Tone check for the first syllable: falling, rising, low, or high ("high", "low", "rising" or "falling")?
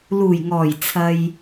low